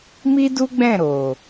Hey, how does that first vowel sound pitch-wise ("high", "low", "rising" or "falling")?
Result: high